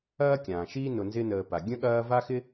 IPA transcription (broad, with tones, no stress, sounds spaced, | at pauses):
ɐː˥ kʲ ãː˩ ʃ iː˥ n ʊ˨ n z ɪ˦ n əː˨ p a˩ ɡʲ ə̃˥ ɠ ɐː˦ v a˥ x ɪ˥